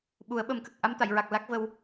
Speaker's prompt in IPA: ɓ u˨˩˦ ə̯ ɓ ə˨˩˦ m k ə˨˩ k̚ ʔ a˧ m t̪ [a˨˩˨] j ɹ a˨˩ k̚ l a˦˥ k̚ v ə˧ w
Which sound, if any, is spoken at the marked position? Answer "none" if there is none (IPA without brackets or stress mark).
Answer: a˨˩˨